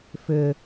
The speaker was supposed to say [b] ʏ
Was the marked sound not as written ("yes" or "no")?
yes